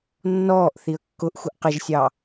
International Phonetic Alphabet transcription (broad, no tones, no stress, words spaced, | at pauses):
nːɔːʔ θiə̯kːʊʔxʷɪʔ qɪʒsʲɑ